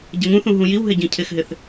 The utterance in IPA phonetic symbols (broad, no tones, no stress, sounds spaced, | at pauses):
ɟ ə ŋ ũ θ ũ ɦ ũ j i w ɦ ɪ ɟ ĩ cʰ ɪ x ɦ ɪ θ